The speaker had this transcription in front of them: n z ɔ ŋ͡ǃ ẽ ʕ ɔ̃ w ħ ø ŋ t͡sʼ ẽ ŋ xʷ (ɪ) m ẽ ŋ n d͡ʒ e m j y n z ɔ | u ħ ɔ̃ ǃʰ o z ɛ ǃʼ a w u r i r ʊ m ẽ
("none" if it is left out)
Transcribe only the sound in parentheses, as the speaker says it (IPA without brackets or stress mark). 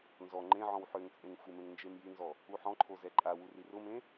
ɪ